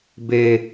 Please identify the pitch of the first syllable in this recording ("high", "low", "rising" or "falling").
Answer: low